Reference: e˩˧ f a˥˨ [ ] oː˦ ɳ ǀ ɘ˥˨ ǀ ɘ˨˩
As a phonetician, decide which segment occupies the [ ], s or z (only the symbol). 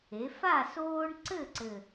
s